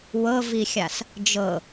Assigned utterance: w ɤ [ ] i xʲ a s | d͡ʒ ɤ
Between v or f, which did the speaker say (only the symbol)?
v